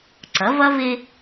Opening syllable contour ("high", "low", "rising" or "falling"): rising